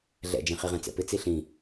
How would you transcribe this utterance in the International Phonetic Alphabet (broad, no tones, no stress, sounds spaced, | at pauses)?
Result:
ɮ ɛ̰ d͡ʒ ẽ χ i ʁ ɛ̃ t͡s ɛ̰ p ɪ t͡s i ɬ ĩ